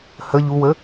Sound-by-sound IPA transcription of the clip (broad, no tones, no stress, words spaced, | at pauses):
hə ʎuwə